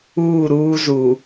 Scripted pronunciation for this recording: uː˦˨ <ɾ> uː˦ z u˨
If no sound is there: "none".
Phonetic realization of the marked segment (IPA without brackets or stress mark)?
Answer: ɾ